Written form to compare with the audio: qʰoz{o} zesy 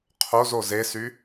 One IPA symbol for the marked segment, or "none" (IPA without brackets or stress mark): o